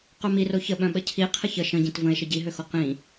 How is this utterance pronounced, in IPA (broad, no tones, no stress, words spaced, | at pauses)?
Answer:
qœmiro çəɓœ̃ɓə cʰi qʰəçə ʃə̃ɟĩt və̃e̯ʃə ɟiɦøxo qĩ